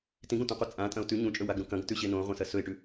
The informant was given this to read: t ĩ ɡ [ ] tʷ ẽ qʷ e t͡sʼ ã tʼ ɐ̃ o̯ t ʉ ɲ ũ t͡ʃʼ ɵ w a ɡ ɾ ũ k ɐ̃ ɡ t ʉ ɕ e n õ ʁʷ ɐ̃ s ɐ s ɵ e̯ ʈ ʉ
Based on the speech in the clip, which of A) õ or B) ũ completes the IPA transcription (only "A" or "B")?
A